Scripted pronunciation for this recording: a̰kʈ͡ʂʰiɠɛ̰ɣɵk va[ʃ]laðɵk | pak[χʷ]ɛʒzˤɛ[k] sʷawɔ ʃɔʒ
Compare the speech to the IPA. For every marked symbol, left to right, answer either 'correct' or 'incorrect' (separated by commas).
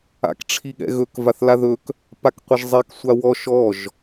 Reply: incorrect, incorrect, correct